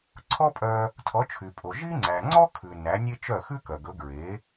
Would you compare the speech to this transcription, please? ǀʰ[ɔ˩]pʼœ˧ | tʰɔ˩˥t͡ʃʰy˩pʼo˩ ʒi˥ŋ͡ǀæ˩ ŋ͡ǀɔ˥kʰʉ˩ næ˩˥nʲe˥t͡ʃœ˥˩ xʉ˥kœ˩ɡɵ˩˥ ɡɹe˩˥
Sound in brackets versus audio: incorrect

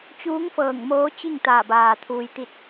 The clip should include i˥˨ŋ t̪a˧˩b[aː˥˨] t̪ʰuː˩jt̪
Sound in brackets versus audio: incorrect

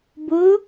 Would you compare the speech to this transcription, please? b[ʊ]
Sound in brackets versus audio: correct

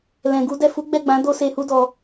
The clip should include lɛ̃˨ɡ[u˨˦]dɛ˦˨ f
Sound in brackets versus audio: correct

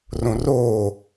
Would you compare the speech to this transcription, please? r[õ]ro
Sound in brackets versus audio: correct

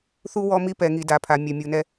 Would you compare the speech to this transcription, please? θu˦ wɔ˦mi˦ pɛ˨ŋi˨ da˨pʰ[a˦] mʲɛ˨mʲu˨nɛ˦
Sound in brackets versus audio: incorrect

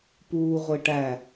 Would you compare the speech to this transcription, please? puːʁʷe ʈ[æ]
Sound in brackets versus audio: correct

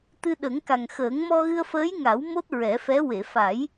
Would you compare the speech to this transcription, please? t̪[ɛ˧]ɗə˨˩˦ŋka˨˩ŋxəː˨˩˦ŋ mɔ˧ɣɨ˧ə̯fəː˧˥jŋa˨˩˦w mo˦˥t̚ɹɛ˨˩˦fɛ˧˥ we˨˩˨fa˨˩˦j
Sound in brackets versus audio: incorrect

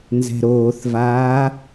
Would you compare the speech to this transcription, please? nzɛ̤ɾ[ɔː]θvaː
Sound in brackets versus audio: incorrect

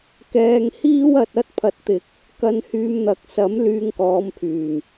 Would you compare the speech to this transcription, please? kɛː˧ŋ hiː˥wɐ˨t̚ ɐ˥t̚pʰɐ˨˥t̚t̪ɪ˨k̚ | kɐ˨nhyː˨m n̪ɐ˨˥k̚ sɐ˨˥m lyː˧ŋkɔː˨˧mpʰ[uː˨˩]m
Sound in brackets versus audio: incorrect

